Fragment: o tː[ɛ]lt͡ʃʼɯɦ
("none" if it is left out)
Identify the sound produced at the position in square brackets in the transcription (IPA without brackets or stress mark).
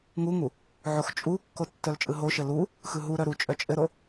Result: œ